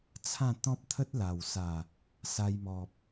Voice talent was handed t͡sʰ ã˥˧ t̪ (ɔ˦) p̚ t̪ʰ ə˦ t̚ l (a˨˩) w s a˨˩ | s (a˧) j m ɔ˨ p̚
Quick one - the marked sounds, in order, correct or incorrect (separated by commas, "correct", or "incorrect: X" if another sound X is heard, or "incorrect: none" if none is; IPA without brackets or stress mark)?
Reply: incorrect: ɔ̃˦, correct, correct